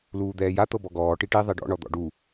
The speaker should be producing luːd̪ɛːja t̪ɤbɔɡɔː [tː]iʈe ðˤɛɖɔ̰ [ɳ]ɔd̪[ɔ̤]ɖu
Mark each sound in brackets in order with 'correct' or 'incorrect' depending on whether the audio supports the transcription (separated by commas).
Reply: incorrect, correct, incorrect